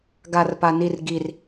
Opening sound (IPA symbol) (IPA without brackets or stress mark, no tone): ɡ